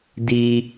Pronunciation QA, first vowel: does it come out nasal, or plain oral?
oral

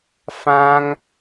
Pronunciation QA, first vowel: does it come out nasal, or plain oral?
nasal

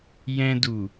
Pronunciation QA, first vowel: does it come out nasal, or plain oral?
nasal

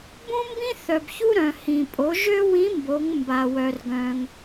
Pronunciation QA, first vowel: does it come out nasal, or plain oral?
nasal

